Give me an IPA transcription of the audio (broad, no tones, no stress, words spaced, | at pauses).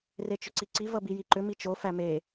ret͡ʃʏǀiǀi vʌbijiǃʏ mit͡ʃo fæme